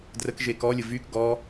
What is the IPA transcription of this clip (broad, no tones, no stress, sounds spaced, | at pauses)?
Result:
d r ə k ʒ e k ɔ lʲ ə v y k ɡ ɔ